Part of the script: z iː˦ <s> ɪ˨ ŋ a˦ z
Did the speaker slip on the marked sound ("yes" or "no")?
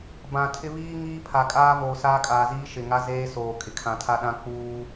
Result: yes